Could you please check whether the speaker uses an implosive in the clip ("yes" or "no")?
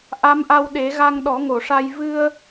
yes